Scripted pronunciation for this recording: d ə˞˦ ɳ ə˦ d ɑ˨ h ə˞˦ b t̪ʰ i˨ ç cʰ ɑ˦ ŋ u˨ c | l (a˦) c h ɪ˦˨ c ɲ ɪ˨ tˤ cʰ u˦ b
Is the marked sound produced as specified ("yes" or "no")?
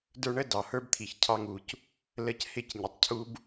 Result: no